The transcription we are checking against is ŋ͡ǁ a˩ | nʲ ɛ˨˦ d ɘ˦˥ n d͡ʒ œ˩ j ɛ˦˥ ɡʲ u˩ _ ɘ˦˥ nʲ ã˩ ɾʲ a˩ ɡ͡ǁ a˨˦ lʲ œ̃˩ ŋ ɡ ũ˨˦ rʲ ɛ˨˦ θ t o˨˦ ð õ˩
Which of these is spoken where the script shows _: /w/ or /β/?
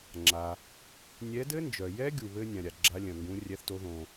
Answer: β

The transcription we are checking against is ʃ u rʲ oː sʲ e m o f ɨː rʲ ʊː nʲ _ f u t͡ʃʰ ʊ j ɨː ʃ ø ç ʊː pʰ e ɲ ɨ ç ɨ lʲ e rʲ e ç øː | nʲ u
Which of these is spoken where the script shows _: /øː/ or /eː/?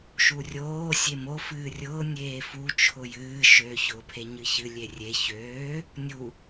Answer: eː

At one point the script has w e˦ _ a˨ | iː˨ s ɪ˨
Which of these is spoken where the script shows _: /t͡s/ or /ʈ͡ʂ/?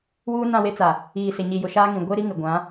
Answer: t͡s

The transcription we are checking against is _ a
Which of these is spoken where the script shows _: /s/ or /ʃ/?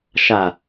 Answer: ʃ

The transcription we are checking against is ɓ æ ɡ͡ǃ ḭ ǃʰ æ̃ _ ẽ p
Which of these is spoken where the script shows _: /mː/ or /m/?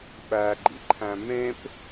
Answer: m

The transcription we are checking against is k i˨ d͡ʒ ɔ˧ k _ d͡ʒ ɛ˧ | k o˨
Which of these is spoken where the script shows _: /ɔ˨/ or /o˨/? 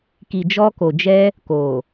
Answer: o˨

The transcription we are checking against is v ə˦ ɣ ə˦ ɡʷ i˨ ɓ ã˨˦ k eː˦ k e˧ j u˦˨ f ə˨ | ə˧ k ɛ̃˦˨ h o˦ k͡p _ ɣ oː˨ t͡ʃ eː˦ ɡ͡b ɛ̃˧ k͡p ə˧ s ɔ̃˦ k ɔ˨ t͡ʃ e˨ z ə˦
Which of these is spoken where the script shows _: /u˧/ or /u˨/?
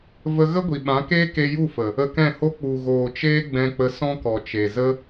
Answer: u˨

